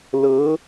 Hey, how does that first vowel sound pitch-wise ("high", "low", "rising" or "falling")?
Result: rising